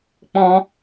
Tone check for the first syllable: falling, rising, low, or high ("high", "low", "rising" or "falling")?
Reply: high